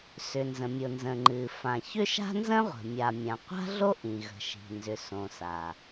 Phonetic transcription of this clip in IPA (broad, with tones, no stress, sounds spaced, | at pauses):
s ʏ˩ n z ə̃˩ mʲ ʊ˩ n z ə̃˩ ŋ͡ǃ ɨ˩ f ã˩ ç ʏ˥ ʃ a̤˥ n z ə̃˥ ʁʷ ə̤˩ mʲ a˩ mʲ ã˩ qʷ a̤˥ ɮ o˥ ʔ ĩ˩ ɣ ə̤˩ ʃ i̤˩ n z ʏ˩ s õ˩ s a˩